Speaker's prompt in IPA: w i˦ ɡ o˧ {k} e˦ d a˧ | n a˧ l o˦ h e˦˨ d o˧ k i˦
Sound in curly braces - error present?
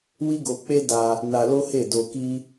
yes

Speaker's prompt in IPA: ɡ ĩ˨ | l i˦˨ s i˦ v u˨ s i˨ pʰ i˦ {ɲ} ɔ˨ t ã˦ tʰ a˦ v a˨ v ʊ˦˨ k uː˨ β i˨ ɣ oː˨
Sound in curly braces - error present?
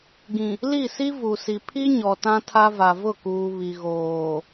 no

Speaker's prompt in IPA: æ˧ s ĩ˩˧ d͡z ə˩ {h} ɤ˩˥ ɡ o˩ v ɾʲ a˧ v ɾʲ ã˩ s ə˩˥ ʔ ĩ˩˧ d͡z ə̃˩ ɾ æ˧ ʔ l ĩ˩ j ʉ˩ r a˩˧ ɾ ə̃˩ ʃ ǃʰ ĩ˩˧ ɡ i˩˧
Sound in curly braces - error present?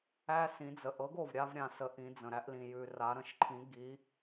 yes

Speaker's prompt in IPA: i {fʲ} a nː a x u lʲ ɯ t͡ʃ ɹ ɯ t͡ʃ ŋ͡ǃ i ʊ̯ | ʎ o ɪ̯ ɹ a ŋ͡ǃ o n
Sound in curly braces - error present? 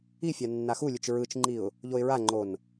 no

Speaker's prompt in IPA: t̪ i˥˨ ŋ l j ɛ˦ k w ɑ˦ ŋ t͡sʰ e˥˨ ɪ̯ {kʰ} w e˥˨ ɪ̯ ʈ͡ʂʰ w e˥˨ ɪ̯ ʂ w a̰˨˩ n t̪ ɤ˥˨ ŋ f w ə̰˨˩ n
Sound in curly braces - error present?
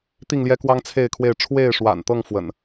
no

